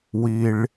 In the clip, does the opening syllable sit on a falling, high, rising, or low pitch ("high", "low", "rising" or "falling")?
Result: high